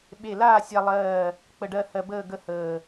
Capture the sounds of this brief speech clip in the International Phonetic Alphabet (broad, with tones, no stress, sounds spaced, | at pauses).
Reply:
ɓ e˧˩ l aː˥˨ sʲ a˧ lˠ ɜː˧˩ | k͡p ə˧˩ ɖ ɜ˥˨ h ɜ˧ b əː˥˨ ɡ ə˥˨ h əː˧˩